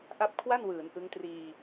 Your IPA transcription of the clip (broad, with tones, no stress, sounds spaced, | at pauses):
ʔ a˥˩ p̚ kʰ w a˥˩ n w ɯː˩˦ n ʔ ɯ˦˥ ŋ t r iː˧